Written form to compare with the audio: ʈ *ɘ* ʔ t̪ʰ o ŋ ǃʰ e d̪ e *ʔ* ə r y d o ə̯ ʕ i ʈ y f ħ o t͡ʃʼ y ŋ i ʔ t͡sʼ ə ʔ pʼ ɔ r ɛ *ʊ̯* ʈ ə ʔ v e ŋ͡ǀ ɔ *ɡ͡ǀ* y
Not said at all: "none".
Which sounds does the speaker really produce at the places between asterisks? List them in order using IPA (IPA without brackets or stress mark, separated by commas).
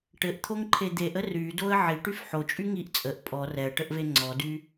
ɘ, ʔ, ə̯, d